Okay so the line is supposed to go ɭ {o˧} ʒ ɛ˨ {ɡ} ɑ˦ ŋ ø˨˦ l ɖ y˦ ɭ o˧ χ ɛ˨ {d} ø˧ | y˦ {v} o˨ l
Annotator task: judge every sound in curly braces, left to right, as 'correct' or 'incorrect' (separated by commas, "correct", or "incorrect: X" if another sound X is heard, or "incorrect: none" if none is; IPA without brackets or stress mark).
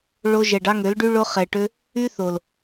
correct, incorrect: ɖ, incorrect: ʈ, incorrect: θ